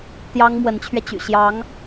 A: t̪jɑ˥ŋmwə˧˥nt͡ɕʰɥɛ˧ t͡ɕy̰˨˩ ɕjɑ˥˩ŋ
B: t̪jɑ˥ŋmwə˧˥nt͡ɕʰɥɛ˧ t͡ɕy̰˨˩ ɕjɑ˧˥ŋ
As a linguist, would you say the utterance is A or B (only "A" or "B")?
B